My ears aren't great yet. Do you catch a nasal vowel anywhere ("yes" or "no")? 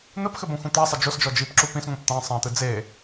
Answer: yes